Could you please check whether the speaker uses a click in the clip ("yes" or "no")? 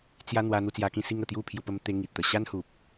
no